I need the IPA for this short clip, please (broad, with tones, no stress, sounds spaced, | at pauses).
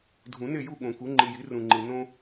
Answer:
dʱ ũ˨˩˦ n e˥˨ j u˥˨ ɠ õ˨˩˦ k u˩˥ ŋ͡ǃ i˨ j i˩˥ r ũ˨ ŋ͡ǃ i˨ n õ˥